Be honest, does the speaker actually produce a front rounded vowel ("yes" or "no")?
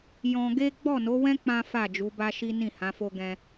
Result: no